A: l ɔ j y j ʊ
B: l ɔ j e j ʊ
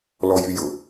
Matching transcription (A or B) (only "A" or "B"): A